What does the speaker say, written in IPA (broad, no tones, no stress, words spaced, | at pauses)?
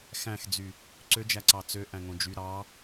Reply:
xæ̃xd͡zy | ǀød͡ʒæǀɑ t͡sø ʔæ̃ŋõd͡ʒy ɾɑ